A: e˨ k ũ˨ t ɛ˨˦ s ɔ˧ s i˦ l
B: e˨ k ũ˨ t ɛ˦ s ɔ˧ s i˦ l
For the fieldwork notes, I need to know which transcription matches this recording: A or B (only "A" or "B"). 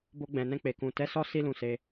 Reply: A